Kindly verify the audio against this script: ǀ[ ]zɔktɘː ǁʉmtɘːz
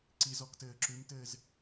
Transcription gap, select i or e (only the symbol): i